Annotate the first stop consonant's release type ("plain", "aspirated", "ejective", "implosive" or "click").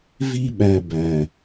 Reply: implosive